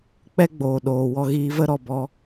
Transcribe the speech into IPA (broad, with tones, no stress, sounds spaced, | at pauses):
k͡p ɛ˦ ɡ͡b oː˨ ɗ oː˨ w ɔ˧ ɣ iː˧ v ə˦ ɾ ɔ˨ b ɔ˧